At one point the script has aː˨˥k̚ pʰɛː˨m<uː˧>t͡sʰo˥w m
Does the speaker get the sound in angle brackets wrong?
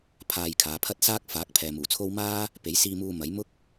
yes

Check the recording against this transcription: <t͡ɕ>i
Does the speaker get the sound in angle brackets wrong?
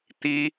yes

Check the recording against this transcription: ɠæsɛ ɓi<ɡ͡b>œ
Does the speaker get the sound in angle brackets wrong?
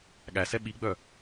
no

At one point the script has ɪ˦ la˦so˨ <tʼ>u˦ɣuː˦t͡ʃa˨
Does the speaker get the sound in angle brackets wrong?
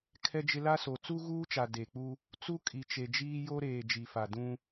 yes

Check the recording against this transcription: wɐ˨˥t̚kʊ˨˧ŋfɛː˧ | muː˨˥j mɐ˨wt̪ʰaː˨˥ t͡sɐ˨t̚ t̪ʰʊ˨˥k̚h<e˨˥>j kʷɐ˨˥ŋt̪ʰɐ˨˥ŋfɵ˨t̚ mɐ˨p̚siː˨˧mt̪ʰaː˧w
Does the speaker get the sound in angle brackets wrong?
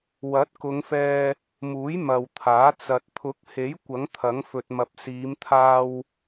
no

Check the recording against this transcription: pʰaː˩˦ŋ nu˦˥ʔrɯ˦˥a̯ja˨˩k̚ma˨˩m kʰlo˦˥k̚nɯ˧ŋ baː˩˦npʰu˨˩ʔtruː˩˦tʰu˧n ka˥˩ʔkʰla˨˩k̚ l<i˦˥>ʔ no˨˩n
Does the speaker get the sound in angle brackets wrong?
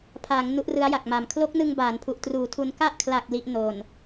no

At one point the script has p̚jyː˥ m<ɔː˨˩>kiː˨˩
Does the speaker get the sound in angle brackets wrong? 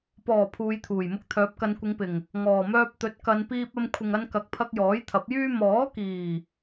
yes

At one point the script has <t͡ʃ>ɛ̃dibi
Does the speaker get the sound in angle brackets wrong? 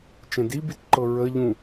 no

